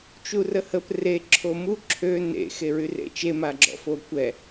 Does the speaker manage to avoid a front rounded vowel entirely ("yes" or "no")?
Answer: no